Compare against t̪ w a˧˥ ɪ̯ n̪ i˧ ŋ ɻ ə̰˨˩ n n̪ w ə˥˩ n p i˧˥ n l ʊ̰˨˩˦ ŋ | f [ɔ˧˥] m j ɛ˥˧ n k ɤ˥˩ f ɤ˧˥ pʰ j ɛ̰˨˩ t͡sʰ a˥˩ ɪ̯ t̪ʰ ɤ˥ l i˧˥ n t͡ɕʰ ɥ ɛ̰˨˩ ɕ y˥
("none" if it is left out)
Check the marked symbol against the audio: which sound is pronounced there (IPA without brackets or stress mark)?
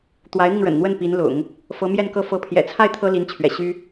ɤ˧˥